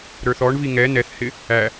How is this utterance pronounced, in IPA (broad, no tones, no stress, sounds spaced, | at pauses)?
ɾ ə˞ θ ɔ ɳ v i ŋ ɛ n ɛ θ h ɪ | æ